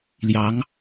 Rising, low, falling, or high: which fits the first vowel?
rising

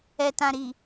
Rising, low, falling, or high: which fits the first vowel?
low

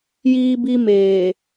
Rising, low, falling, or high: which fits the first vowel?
high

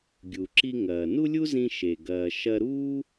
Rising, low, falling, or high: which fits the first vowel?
low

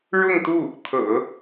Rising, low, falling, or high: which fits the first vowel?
falling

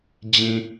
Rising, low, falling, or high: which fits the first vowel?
low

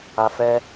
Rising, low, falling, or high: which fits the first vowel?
high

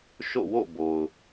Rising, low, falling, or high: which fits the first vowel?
falling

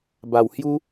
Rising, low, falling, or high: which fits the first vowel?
low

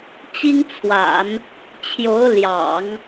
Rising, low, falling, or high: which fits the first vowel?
high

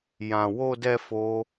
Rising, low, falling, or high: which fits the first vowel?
low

